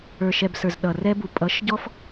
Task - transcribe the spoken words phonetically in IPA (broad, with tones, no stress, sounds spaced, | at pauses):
ə˞˨ ʃ ɛ˨ b s ə˞˨ z ɗ ʌ˨ r ɛ˧ b u˨ pʼ ʌ˨˦ ʃ ɟ ɔ˦ f